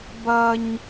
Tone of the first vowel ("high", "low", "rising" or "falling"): high